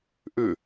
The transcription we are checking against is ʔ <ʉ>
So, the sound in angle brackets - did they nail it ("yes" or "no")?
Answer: yes